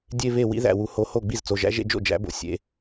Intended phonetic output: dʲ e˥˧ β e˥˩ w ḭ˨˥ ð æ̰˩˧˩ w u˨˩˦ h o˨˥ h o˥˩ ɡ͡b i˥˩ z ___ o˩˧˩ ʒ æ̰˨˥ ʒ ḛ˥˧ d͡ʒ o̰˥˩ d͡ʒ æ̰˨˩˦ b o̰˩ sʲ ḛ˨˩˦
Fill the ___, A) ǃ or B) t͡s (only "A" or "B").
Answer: B